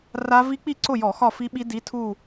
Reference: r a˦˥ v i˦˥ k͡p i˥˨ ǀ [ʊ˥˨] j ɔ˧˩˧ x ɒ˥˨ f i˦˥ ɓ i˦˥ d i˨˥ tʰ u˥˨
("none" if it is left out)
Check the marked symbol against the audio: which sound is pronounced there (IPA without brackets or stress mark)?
ʊ˥˨